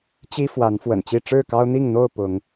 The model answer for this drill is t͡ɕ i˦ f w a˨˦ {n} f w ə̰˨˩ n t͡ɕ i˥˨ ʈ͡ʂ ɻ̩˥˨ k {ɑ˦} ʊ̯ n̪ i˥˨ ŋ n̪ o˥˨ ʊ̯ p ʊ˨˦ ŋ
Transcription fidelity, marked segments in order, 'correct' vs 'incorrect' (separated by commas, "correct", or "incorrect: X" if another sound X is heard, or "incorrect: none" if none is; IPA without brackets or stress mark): correct, correct